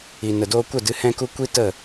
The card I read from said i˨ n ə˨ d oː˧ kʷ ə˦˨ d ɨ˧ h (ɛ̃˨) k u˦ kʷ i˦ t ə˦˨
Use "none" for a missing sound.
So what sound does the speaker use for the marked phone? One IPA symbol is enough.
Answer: ɛ̃˦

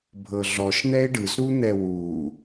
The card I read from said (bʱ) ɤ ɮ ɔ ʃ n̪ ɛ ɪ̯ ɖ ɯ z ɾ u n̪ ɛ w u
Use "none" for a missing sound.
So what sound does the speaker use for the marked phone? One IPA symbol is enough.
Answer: bʱ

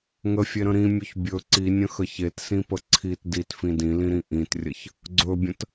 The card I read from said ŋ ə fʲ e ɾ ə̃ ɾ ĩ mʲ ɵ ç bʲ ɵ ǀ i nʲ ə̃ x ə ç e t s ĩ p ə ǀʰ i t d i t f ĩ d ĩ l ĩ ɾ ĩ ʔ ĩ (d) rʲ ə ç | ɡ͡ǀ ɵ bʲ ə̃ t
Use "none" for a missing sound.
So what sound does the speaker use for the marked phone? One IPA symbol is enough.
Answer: t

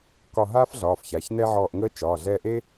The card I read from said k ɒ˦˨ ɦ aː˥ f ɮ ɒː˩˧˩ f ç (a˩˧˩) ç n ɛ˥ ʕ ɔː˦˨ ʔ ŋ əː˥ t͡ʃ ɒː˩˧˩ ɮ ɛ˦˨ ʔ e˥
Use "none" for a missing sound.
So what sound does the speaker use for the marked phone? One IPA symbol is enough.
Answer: a˩˧˩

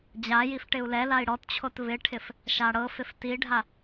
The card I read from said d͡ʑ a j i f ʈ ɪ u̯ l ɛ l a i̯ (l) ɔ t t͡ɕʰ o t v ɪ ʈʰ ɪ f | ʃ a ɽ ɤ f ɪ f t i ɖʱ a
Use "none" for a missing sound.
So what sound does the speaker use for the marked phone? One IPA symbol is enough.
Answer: ɽ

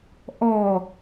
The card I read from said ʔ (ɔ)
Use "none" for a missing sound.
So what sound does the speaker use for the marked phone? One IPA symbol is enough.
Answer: ɔ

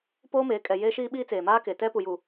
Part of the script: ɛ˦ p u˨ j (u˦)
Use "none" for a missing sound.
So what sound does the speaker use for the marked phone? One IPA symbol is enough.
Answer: u˨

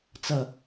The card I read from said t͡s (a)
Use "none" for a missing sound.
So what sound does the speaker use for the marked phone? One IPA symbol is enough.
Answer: ʌ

